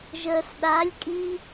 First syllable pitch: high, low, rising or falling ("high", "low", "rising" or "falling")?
low